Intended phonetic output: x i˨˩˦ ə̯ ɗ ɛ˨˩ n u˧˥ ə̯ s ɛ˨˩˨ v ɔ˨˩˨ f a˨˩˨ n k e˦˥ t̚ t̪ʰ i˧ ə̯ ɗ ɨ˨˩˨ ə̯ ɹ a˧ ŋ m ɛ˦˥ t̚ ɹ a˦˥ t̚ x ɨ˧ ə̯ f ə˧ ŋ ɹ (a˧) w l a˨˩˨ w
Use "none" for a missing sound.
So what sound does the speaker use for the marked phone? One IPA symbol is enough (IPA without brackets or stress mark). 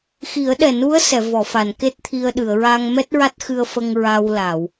a˧